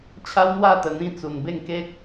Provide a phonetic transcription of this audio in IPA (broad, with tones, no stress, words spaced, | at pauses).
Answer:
t͡ɕʰa˦wn̪wa˥˧t̪ə˨˩n̪ĩ˧ t͡su˨˩nbe˥˧ŋke˦k̚